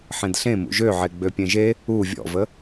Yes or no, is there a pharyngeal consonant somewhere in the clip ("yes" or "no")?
yes